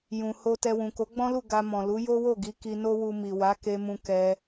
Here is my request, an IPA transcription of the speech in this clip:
j ũ˨ h o˧ t ɛ˧ w ũ˨ k o˨˦ ɡ͡b ɔ̃˦ l u˦˨ ɡ a˧ m ɔ̃˨ l u˨˦ j o˦ w o˦˨ ɡ i˨˦ k i˧ n o˦ w u˧ m i˨ w a˨˦ k e˧ m ũ˧ k ɛ˧

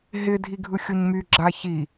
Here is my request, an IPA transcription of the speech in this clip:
ɦ ɪ dʱ i ɡʱ ɯ xʲ o ɲ m y ɡ͡ǁ a ç i

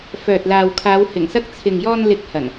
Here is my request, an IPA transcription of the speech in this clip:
f œː˨ t̚ l aː˨ w kʰ aː˨˧ w h ɪ˨˩ ŋ s ɐ˧ k̚ t͡sʰ ɪ˨ ŋ j ɔː˧ n l ɪ˨˥ k̚ h ɐ˨˩ n

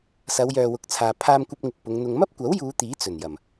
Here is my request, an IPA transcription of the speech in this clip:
s ɐ˨˧ w j œː˨ w ʊ˨˥ k̚ t͡sʰ aː˨ pʰ aː˧ m kʷ ɐ˧ p̚ ŋ ɪ˨ k̚ p ʊ˨˧ ŋ n̪ ʊ˧ ŋ m ɐ˥ p̚ kʷ ɐ˨˥ w j uː˨˧ t̪ iː˨˥ t͡s ɵ˨˩ n j ɐ˨˩ m

